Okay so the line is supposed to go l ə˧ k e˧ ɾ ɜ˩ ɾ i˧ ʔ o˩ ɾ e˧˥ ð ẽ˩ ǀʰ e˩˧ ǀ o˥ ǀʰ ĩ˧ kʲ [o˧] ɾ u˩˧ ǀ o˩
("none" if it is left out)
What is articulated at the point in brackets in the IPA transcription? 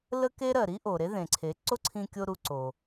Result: o˧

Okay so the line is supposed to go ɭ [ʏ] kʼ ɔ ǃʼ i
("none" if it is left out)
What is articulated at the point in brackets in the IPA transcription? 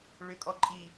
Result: ʏ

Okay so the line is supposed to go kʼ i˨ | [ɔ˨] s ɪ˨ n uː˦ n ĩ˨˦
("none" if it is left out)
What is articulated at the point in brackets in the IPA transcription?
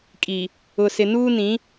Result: ʊ˨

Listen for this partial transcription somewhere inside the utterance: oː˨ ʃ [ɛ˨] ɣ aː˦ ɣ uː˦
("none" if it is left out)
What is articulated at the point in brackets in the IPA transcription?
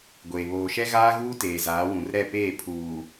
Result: ɛ˦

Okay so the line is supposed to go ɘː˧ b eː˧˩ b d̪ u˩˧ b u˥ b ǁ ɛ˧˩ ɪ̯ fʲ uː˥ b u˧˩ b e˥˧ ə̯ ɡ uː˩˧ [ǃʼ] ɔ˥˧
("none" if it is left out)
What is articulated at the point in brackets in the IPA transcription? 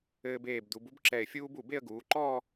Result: ǃ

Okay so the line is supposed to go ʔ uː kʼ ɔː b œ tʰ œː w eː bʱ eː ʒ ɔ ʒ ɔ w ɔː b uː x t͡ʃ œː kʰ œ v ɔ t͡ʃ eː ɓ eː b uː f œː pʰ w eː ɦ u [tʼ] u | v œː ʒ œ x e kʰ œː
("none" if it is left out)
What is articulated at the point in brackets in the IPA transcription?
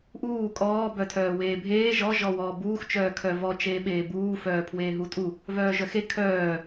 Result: tʼ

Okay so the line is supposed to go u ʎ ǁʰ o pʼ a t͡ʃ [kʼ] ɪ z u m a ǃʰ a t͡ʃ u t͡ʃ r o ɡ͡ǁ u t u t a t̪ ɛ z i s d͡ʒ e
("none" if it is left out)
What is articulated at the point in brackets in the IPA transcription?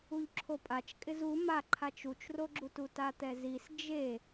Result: kʼ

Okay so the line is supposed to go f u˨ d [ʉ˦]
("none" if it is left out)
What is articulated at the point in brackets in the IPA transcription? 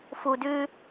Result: ʉ˦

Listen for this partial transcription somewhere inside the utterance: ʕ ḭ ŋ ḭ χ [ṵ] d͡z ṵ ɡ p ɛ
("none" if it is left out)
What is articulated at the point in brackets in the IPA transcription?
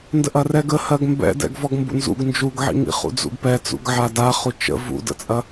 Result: ṵ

